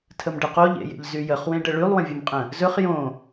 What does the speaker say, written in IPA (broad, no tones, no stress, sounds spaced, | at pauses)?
tʰ ə m ɖ ɘ q o ʎ ḛ j ḛ ʎ z y j ə χ w ẽ ɖ ə ɭ y lˠ w ə̃ vʲ ɵ m qʼ ə̃ | z ɵ χ j õ